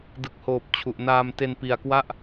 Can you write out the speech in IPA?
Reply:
dɯ˨˩k̚hoː˨˩p̚ t͡ɕʰu˨˩ʔnaː˧mte˧n pi˨˩a̯kwa˥˩ʔ

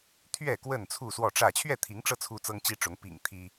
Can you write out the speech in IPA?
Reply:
t̪ʰɥɛ˥˨ kwə˥˨nt͡sʰu˥˨swɔ˥˨ʈ͡ʂä˥˨ t͡ɕʰɥɛ˥˨t̪ʰi˨˦ŋʈ͡ʂɤ˧ t͡sʰu˦t͡sɤ˦ŋt͡ɕi˦ʈ͡ʂʊ˨˦ŋ pḭ˨˩ŋ t̪ʰi˦

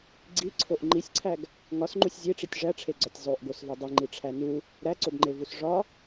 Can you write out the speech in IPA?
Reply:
ɡ͡ǀiǀʰoʔ ŋ͡ǃisʲǀʰæɡ | ŋɒsŋ͡ǃusʲ zʲeʈ͡ʂitʲ ʐæʈ͡ʂʰeɡ͡ǀɒtʲ zˤoʔɡosve dˤiŋ͡ǃiʈ͡ʂʰæ nu | ɾæǀobŋ͡ǃevus ʐɒ

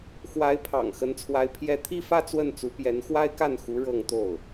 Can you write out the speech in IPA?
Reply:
xwa˧˥ɪ̯pʰɑ̰˨˩ŋ xə˧˥nt͡sʰwa˧˥ɪ̯ pʰjɛ˥˧ t̪ʰi˥˧fä˥˧ t͡swə˥˩nt͡su˧˥ pjɛ˧˥nxwa˥ɪ̯ka˥˩nxu˧˥ ɻɤ˥˧ŋt̪o˥˩ʊ̯

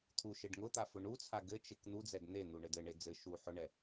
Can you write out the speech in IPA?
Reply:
t̪ʰuʃeɖ ŋʊt̪a fʊɳut͡sʰa ɡɘt͡ʃek n̪ud͡zɛd n̪en̪u ɳɘdɘɳe d͡zɘ ʃu ħʊɳɛ

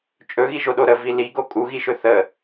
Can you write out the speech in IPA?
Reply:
t͡ʃʼɵɣiʒoɗo ɾəvi liɡo kʼuɣiʃɵ θə

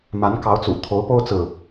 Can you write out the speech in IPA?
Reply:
ma˧˥nkɑ˧˥ʊ̯t͡sṵ˨˩ t̪ʰo˧˥ʊ̯po˥ʊ̯t͡sɹ̩˨

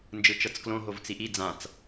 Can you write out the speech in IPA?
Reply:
nd͡ʒɯt͡ʃɤt͡sklõɦov t͡siʔi d͡zãt͡s

